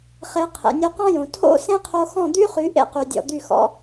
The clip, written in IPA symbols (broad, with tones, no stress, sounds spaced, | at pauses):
χ e˨˦ qʰ ḛ˨ nʲ o˧ q ɔ̃˦ j õ˨ tʰ o̰˦ s ẽ˦ qʰ o˧ x ɔ̃˦˨ d̪ y˦ χ y˨˦ ʔ ḛ˦ q y˨ dʲ ɔ̰˨ d̪ y˦˨ x ɔ̰˦